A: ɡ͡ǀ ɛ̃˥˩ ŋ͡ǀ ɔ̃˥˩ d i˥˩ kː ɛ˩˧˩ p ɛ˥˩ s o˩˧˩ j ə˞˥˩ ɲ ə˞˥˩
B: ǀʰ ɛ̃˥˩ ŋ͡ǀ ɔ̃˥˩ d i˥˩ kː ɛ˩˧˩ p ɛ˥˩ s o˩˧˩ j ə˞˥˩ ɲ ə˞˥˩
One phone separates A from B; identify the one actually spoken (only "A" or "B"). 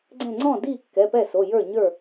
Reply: A